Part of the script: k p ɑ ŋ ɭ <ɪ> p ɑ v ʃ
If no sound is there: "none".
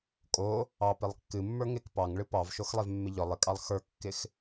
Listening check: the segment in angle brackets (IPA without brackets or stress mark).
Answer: ɨ